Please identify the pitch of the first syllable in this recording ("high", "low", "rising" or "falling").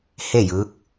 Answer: falling